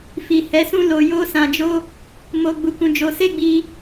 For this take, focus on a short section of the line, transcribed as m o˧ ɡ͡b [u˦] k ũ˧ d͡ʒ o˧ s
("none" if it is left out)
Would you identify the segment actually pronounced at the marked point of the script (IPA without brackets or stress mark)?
u˧